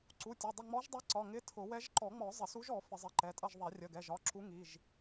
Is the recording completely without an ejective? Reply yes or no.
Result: no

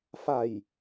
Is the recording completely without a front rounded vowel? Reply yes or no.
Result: yes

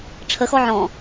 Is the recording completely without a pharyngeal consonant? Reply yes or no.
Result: no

